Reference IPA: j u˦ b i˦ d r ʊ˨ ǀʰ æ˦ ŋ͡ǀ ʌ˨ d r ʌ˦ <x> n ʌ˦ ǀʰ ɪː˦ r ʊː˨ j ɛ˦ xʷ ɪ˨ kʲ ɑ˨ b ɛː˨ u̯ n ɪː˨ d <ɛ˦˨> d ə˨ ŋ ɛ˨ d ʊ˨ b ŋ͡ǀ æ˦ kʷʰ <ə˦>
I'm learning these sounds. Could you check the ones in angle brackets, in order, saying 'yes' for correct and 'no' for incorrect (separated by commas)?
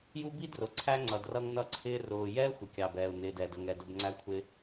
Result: no, no, no